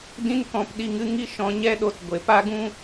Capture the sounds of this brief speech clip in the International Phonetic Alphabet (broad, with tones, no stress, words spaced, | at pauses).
dĩ˧n kɔ̃˨p ɗi˧ŋɨ˦ŋi˦ ʃɔ̃˧ɲɛ˦ɗo˧t ɡʷe˨pa˦ɡũ˦